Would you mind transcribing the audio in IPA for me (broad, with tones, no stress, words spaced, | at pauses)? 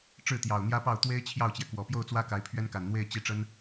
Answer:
ʈ͡ʂɻ̩˥˩t̪jɑ˨˩ʊ̯n̪jä˥pɑ˥˩ʊ̯ t̪we˥ɪ̯ t͡ɕʰjɑ˥˩ʊ̯t͡ɕjɛ˩kwɔ˨˩ pjo˥˩ʊ̯t͡swä˥ ka˧˥ɪ̯pʰɥɛ˥nka˨˩n n̪we˥˧ɪ̯ t͡ɕi˥˩ʈ͡ʂə˥n